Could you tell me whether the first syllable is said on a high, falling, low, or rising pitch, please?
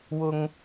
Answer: high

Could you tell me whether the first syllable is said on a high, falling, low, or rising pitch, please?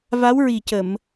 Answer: rising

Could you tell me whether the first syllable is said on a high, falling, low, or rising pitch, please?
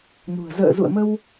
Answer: low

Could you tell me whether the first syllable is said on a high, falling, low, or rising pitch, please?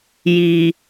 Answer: low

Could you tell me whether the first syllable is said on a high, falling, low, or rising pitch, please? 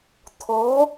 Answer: rising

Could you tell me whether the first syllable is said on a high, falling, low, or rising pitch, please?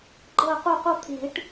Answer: falling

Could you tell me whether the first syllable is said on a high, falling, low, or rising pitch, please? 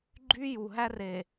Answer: high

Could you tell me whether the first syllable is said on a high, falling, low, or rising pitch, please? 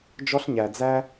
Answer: high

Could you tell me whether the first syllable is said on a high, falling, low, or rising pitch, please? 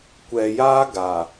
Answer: low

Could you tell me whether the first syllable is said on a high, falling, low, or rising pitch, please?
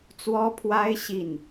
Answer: high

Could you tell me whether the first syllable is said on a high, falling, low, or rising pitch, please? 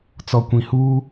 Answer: low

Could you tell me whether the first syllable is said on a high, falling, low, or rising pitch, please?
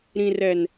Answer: low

